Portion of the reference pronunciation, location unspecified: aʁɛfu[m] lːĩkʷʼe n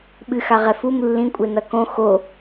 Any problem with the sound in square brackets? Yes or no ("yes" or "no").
no